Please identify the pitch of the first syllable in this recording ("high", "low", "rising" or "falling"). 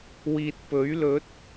low